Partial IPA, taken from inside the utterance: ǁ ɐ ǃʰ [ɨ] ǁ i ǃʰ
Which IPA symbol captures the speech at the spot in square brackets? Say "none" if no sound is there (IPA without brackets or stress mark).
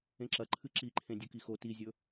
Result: ɨ